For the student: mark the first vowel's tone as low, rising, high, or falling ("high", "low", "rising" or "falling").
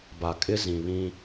low